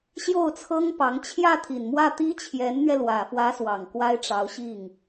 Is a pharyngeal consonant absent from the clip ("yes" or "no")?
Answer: yes